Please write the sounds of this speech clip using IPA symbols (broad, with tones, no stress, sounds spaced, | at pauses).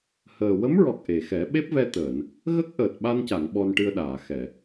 h əː˨˩ w ə˧˥ m ɹ ɔ˨˩ k̚ ʔ e˨˩ x ɛ˨˩˦ ɓ e˦˥ p̚ v ɛ˧ t̪ əː˨˩˨ n | ɣ ə˦˥ k̚ ʔ əː˨˩ t̚ ɓ a˧ n c a˨˩˨ ŋ ɓ ɔ˧ n ʈ ɨ˧ ə̯ ɗ aː˨˩˨ x ɛ˨˩˨